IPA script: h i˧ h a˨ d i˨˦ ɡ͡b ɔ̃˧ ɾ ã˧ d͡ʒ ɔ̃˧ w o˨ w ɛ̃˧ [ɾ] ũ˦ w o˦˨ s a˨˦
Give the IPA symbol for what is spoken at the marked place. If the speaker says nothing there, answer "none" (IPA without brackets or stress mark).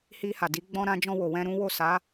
ɾ